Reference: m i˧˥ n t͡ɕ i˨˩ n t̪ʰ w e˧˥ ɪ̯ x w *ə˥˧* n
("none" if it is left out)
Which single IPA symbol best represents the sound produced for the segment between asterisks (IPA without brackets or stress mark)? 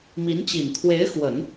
ə˨˩˦